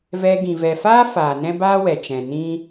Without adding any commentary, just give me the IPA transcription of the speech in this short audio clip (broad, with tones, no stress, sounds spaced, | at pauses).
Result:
v ɛ˧ ɡ ĩ˨ v ɛ˨ f aː˦ f aː˨ n ɛ̃˦ b aː˦ w ɛ˨ t͡ʃ ɛ̃˨ n ĩ˦